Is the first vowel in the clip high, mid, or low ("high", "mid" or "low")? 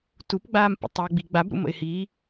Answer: high